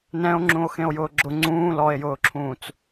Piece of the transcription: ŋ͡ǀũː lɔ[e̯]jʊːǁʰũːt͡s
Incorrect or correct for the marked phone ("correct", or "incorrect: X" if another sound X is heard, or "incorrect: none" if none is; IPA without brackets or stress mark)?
correct